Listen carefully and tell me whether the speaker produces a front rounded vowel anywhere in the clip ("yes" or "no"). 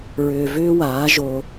yes